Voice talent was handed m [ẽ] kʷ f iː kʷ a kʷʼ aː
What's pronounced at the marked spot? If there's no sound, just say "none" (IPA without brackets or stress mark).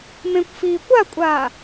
ẽ